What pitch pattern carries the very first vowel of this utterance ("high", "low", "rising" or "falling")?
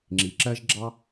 low